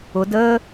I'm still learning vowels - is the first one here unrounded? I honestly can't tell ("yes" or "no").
no